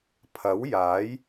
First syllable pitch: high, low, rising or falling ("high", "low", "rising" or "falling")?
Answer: rising